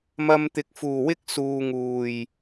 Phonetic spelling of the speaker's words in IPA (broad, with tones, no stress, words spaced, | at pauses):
mɐ˧mt̪ɪ˨˥k̚fuː˨˩wɪ˥k̚ suː˨ŋuː˨˩j